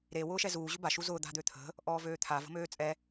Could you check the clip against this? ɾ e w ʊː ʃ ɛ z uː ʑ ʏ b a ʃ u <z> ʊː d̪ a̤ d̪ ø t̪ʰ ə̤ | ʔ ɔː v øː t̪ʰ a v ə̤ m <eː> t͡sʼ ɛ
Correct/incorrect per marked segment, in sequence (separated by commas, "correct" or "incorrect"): correct, incorrect